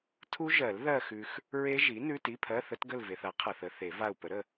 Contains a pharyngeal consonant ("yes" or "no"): no